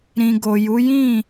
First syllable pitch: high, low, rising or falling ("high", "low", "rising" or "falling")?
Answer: low